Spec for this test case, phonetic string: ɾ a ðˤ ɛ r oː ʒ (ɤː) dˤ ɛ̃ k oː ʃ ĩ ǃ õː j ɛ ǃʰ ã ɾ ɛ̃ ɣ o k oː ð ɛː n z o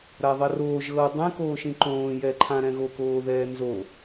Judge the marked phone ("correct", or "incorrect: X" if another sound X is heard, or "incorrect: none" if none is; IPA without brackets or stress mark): correct